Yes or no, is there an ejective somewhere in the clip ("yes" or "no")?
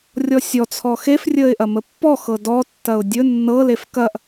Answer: no